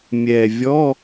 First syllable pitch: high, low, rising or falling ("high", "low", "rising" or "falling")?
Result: low